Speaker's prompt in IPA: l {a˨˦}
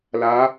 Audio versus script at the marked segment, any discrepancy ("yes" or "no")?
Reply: no